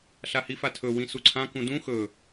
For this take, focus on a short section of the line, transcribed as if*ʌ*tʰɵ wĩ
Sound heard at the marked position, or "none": a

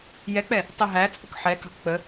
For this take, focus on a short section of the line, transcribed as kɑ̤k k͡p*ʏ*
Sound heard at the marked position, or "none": ə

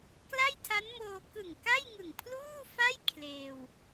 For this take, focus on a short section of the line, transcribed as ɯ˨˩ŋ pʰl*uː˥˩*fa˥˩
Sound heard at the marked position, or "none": uː˥˩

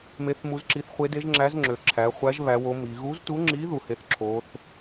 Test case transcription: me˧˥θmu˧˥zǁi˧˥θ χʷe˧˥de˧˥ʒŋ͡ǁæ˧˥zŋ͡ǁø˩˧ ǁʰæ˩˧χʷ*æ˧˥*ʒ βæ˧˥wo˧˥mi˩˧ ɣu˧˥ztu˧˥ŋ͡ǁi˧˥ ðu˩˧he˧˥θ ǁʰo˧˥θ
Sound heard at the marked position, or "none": æ˧˥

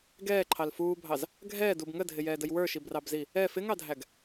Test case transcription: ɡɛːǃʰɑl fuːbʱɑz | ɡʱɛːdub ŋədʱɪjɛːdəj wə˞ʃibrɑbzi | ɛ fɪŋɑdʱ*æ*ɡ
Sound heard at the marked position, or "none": æ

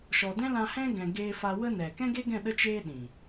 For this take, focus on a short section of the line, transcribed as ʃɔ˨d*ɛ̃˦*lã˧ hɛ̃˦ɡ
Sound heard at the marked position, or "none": ɛ̃˦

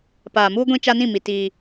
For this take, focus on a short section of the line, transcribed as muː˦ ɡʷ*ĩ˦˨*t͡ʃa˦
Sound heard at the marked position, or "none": ĩ˦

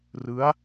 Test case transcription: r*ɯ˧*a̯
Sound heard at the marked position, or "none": ɯ˦˥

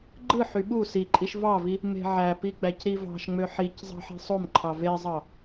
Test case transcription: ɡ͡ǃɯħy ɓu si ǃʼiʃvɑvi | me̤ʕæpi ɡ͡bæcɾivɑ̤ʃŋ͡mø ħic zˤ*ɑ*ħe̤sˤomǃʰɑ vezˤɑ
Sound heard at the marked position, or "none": ɑ̤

